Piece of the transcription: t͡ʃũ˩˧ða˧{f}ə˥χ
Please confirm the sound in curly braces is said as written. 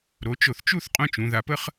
no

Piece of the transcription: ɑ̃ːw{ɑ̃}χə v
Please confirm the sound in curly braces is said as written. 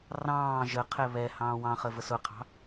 yes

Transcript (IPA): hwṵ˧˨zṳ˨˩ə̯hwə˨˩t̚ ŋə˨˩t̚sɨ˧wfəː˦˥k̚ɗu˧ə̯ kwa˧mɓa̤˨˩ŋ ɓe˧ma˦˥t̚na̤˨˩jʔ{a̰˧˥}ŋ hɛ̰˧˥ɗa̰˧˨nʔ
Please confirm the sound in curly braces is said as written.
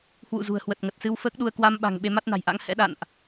yes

